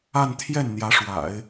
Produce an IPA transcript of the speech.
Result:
a˥˧ n t̪ʰ j ɛ˥˩ n n̪ j ä˧˥ ʂ w a̰˨˩˦ ɪ̯

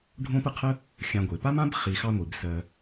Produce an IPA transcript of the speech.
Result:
ɖʱ õ˥ p ə˥ qʰ ə˥ | xʲ ã˨ ɡʷ e˩ p a˥ m ã˥ b χ i˨ x ɑ˦ ŋʷ i˩ b s ɜ˨

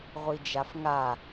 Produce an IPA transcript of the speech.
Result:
ʁʷ i d͡ʒ a f ŋ a

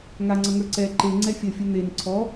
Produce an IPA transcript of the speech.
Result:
ŋ a ŋ͡ǀ ʌ ŋ ə˞ ǀ ɛ ǃ e ŋ͡ǀ ɛ fʲ ʌ fʲ ʌ n̪ e n ǀʰ ɔ

